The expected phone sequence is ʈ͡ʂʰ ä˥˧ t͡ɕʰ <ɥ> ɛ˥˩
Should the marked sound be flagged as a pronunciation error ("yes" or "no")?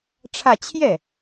yes